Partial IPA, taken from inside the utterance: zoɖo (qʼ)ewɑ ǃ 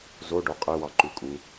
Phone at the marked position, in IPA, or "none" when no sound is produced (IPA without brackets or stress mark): qʼ